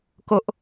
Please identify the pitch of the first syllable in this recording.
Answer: high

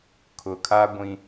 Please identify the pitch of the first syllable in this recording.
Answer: low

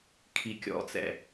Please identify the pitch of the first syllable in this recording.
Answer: low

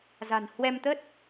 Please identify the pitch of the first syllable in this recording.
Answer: low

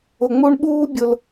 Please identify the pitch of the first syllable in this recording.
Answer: low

